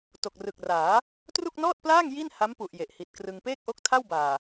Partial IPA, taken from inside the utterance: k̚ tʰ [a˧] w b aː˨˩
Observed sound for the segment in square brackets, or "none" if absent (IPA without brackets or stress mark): a˥˩